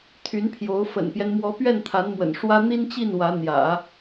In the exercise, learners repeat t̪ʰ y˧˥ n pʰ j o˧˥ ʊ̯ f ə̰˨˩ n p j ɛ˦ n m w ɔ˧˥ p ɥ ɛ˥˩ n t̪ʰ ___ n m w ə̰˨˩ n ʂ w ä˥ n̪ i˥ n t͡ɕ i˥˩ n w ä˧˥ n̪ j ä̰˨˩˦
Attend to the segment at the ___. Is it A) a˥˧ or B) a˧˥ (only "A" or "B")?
B